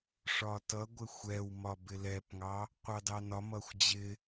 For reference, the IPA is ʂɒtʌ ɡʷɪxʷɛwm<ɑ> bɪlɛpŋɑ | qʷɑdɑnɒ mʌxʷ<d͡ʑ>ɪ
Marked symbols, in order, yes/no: no, yes

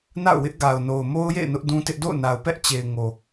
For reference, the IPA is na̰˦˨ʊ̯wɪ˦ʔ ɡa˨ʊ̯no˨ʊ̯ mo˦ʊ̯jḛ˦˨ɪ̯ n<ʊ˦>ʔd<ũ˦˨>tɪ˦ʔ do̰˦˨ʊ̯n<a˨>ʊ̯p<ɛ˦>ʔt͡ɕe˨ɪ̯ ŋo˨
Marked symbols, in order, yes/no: yes, no, yes, yes

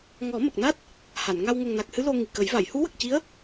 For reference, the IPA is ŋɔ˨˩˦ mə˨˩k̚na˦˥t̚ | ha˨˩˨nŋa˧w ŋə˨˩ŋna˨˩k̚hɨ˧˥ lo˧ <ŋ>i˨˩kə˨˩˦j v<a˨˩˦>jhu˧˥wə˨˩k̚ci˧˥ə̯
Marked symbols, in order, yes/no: yes, no

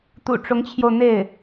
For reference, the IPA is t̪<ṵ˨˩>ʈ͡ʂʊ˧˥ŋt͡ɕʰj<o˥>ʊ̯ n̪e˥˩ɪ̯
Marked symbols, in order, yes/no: yes, no

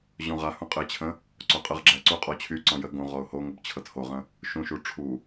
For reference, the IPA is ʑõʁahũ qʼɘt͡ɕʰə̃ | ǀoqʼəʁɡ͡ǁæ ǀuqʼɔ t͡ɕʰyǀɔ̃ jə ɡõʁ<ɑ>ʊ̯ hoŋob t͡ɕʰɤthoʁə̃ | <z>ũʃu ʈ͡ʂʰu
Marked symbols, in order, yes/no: no, no

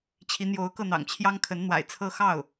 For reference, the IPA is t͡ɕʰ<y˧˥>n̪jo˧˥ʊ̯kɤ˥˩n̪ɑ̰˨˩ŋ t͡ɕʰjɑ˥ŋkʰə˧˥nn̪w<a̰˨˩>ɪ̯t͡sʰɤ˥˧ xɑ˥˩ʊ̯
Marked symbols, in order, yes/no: no, yes

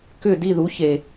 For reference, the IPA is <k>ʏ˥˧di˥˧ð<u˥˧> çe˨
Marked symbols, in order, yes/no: yes, no

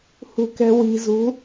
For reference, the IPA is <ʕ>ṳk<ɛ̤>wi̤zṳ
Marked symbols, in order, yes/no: no, yes

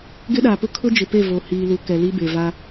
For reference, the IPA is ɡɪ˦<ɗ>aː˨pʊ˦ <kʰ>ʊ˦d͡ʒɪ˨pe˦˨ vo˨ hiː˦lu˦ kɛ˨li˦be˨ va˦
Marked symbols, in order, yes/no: yes, yes

